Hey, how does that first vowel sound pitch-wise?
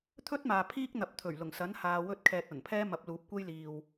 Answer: high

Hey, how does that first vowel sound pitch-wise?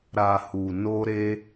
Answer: low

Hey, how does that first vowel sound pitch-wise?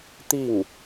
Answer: falling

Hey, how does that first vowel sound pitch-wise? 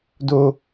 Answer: high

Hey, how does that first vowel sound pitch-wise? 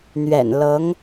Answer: low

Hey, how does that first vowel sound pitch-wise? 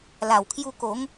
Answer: low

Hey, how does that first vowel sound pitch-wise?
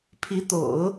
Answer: rising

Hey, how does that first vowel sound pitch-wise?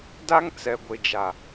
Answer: high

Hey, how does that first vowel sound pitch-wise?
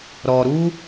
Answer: low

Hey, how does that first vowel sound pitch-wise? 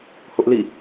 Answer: high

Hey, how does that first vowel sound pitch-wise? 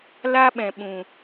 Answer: high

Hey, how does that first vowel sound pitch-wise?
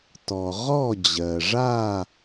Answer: low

